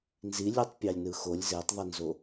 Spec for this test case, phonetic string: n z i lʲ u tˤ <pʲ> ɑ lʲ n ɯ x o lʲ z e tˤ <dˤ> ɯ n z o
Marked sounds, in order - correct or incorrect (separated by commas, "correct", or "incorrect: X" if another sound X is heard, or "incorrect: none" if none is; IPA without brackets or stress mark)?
correct, incorrect: ðˤ